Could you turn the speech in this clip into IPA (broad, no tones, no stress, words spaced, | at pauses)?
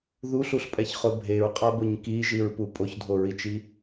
ðuɬuɬpʼɛçχʊ bʱeɹqʼabʊɲ kiʒiɹpu pʼoçdʱoɹit͡ʃi